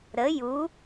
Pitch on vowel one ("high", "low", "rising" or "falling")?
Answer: rising